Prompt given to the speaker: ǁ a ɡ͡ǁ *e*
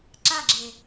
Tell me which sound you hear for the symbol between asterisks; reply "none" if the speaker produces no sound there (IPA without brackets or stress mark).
e